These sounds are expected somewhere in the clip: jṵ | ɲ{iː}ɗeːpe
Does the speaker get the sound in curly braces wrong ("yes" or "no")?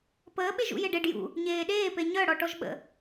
yes